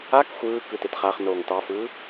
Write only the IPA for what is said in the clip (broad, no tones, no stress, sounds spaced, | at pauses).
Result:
a k xʷ ɯː k ɯ t e t χ a χ n oː ŋ t ɑ f ɯː